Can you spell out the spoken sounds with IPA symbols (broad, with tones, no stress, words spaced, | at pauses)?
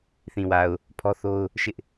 θĩ˨wa˨ʊ̯ | pʰɔ˦θo˦ʊ̯ | ʃɪ˦ʔ